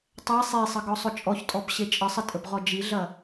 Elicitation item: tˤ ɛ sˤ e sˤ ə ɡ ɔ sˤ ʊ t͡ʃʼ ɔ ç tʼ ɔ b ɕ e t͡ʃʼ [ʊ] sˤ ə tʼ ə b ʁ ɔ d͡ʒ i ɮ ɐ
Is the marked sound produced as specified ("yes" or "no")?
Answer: no